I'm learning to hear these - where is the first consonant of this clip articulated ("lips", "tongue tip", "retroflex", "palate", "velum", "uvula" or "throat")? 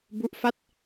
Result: lips